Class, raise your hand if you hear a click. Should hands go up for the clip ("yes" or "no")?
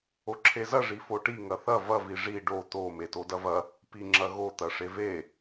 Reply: yes